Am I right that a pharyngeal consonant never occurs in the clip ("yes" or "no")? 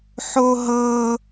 no